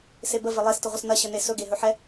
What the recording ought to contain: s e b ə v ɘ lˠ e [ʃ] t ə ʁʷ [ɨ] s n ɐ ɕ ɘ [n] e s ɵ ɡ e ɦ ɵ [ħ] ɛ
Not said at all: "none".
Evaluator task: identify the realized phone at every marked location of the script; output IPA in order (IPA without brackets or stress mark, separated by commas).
s, ə, n, ħ